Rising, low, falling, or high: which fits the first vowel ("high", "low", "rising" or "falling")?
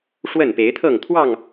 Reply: falling